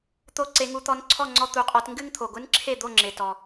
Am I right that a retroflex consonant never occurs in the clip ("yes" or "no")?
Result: yes